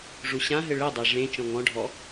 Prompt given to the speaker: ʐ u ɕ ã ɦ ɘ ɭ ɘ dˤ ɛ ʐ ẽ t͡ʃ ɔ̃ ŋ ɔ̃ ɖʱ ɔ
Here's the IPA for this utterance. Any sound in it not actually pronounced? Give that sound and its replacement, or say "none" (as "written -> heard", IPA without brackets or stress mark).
none